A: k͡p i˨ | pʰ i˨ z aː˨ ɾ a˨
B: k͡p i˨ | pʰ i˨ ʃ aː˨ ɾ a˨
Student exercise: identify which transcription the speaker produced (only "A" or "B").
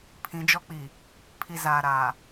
A